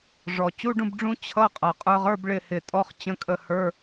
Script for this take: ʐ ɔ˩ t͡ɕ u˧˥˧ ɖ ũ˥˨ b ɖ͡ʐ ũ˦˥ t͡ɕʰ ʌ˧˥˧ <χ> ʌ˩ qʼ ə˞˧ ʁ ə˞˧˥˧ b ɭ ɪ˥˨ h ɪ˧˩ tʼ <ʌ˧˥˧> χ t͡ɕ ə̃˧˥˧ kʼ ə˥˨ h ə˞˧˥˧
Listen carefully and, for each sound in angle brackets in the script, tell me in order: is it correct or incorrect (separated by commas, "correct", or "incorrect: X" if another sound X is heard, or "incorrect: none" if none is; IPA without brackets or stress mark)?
incorrect: qʼ, incorrect: ɔ˧˥˧